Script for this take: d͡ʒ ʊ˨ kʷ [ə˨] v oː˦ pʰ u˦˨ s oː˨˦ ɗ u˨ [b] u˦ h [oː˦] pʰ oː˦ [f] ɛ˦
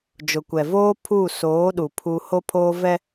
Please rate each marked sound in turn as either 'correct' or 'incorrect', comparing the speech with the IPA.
incorrect, incorrect, incorrect, incorrect

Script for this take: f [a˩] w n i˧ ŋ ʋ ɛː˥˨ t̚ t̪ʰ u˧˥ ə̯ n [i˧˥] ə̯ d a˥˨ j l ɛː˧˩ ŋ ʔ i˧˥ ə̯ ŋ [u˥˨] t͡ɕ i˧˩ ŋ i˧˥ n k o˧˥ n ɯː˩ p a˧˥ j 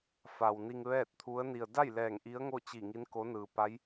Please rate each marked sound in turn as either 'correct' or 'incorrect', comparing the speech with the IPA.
correct, incorrect, incorrect

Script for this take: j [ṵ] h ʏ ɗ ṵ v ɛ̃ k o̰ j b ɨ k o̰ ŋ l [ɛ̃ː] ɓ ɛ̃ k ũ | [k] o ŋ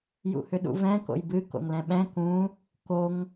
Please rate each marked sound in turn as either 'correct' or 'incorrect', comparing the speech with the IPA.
correct, incorrect, correct

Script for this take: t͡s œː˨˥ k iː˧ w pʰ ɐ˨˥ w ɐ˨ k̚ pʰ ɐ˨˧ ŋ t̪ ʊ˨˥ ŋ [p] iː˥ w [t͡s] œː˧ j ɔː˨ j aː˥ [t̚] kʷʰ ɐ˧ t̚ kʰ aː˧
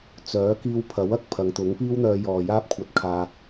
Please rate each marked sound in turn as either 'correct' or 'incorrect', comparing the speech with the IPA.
correct, incorrect, incorrect

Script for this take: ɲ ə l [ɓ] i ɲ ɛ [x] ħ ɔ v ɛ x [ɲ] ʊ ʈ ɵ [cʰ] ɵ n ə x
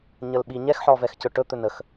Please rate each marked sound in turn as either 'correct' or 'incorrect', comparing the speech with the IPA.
correct, correct, incorrect, incorrect

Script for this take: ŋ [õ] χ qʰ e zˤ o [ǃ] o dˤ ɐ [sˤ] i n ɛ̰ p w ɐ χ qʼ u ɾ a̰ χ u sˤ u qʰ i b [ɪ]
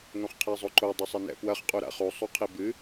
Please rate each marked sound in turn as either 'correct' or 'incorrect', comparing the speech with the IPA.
correct, correct, correct, incorrect

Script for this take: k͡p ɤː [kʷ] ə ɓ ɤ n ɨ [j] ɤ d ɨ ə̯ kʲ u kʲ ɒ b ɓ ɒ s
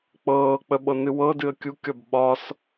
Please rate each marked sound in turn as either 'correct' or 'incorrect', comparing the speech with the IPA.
incorrect, incorrect

